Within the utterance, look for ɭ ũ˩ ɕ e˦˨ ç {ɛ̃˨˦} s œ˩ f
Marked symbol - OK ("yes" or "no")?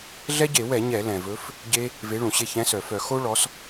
yes